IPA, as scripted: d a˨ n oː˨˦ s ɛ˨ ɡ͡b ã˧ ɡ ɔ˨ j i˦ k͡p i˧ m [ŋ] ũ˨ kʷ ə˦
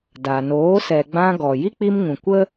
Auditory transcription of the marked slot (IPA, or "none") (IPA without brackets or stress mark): ŋ